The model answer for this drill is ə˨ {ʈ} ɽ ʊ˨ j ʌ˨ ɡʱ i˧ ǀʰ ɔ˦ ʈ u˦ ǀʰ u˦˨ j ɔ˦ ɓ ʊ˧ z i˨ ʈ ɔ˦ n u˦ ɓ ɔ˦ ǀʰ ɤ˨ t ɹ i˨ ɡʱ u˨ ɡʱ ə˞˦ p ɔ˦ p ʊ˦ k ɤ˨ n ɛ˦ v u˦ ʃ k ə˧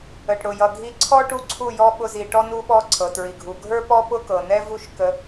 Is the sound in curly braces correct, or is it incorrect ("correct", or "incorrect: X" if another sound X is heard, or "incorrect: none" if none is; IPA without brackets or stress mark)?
correct